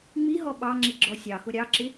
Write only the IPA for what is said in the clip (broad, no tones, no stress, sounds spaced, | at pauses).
ŋ͡m i ɦ ɔ ɓ ɑ ŋ͡ǁ i ɡ͡ǁ ɔ sʲ ɑ x ʊ ɾʲ ɑ ǁ ɪ